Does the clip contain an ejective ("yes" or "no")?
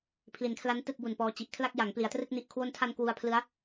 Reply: no